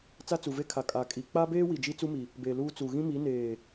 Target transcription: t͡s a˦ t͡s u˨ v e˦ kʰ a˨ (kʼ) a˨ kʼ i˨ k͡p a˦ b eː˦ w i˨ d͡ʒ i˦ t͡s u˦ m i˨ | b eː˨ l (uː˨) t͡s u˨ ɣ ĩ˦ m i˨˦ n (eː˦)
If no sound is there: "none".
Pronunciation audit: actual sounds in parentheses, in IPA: kʼ, uː˦, eː˨

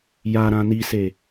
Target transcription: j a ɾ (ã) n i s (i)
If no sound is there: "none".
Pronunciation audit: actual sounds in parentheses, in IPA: ã, e

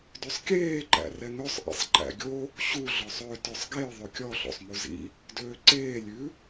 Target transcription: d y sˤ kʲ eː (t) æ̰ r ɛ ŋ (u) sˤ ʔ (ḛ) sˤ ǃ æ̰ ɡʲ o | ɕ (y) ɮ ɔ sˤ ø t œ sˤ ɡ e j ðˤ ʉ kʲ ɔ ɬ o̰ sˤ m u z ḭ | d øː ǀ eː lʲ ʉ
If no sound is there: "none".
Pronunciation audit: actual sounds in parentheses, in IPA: ǃ, ø, ḛ, u

